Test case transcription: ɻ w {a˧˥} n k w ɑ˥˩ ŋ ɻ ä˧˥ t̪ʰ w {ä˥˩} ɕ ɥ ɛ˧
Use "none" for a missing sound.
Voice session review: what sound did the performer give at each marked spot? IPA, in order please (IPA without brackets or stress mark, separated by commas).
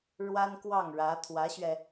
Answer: a˥, ä˧˥